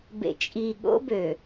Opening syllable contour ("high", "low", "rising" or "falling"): low